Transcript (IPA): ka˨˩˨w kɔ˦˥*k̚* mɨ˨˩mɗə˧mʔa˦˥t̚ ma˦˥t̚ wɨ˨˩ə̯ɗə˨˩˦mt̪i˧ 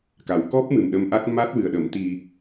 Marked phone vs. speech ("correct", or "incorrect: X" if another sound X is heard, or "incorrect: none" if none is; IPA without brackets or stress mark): incorrect: p̚